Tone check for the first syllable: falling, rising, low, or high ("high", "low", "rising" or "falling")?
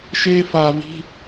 high